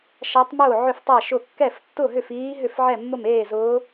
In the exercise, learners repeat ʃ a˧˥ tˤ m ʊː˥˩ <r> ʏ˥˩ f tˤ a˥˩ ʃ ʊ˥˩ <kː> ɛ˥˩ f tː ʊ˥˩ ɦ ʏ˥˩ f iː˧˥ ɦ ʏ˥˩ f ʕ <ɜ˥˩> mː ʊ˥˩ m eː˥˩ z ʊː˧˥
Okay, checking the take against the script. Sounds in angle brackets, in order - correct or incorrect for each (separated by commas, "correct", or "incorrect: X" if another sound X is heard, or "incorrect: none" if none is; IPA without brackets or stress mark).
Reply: incorrect: ʕ, correct, incorrect: ɛ˥˩